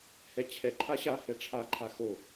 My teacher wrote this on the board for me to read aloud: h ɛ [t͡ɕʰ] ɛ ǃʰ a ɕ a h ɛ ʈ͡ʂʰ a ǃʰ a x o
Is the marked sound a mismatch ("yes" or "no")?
no